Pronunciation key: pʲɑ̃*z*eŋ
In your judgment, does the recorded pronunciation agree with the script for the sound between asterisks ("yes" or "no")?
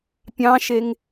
no